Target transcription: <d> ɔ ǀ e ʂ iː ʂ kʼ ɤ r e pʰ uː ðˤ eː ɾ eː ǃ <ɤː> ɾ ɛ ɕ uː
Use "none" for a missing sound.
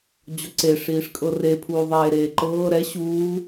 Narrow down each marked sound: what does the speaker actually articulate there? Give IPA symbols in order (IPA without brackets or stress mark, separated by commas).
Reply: d͡ʑ, ɤː